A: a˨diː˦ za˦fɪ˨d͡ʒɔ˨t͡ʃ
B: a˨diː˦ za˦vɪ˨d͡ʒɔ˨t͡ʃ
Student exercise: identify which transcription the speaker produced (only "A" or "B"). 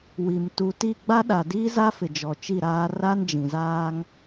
A